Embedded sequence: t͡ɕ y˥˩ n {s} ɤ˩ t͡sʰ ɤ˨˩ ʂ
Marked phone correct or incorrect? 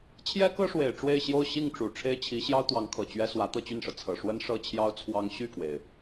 incorrect